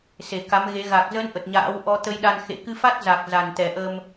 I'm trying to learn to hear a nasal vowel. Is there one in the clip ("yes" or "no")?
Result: no